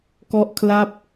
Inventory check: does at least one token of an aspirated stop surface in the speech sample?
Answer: yes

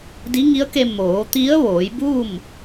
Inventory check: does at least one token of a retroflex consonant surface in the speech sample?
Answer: no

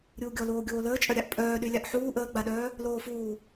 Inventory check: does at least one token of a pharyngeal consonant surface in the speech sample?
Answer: yes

